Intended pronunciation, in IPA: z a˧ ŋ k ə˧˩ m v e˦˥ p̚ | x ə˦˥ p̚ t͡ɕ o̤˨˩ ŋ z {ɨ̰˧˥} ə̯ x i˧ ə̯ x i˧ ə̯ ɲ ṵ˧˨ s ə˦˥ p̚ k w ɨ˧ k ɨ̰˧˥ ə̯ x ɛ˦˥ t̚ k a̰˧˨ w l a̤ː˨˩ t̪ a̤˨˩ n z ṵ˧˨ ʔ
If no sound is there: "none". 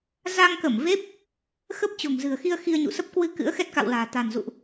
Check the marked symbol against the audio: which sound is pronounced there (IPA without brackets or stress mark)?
ɨ̤˨˩